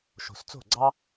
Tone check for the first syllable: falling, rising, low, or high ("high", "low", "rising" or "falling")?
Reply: low